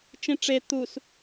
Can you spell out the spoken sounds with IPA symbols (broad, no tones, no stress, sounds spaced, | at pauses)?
t͡ʃ ĩ ʈ͡ʂ e t̪ u s